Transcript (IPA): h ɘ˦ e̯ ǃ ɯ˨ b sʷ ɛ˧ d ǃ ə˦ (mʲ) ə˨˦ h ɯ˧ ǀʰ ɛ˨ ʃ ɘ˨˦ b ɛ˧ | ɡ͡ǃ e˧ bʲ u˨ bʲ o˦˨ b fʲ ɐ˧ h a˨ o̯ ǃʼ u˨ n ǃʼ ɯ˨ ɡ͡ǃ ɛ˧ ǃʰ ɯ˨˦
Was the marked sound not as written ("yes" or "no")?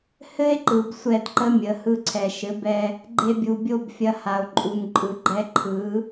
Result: no